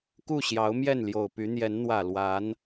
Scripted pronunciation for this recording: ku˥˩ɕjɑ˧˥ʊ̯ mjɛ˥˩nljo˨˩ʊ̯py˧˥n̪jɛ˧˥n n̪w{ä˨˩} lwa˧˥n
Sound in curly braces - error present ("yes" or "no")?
no